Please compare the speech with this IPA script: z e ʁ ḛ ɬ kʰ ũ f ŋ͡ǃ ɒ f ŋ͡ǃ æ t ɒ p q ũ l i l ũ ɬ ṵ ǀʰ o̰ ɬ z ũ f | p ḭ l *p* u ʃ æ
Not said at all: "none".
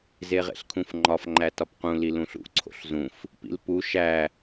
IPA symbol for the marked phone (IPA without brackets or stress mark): p